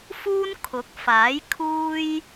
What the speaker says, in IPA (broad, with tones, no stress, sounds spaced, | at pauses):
f uː˥ n kʰ ʊ˨˥ k̚ f aː˨˥ j kʰ uː˥ j